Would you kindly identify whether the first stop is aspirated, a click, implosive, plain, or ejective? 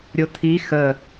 aspirated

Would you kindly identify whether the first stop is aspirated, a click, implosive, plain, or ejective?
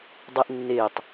plain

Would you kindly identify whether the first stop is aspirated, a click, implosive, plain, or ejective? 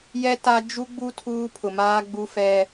plain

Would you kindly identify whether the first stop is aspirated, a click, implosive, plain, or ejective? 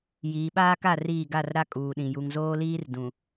implosive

